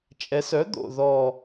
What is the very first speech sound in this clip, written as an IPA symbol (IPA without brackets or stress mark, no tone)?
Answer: t͡ʃʼ